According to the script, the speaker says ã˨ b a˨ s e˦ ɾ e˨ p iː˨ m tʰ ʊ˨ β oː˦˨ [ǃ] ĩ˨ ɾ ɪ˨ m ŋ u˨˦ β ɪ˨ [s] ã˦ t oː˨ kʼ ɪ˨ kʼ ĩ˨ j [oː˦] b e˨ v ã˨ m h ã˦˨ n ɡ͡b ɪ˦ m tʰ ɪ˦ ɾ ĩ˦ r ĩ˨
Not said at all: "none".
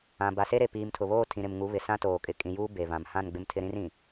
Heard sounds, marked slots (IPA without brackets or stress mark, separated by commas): tʰ, s, uː˦